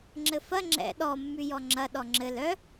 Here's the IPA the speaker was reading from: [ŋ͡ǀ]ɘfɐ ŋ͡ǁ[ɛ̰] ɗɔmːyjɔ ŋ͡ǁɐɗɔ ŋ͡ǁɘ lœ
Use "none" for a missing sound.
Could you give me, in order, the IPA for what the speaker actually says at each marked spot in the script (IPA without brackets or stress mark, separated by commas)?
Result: ŋ͡ǁ, ɛ̰